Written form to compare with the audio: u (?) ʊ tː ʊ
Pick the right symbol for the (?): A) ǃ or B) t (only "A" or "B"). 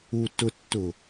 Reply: B